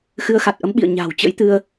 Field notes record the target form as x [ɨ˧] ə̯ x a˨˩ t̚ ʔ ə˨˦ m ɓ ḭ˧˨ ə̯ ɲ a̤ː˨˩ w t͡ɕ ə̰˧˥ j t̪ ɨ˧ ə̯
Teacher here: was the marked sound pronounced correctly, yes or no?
no